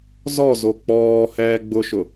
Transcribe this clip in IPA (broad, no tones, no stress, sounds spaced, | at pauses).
z ɔ z o k͡p ɔː h ɛː ɡ͡b ʊ ʃ ʊ